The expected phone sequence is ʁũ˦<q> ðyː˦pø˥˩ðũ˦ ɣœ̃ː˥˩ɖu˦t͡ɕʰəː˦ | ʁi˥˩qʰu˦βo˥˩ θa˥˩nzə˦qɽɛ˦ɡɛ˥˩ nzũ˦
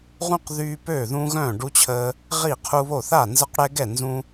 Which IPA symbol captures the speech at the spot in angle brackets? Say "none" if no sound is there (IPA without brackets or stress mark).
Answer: q